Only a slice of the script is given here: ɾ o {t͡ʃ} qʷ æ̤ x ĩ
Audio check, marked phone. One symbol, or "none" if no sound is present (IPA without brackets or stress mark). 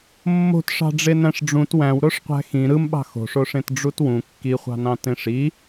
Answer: ʂ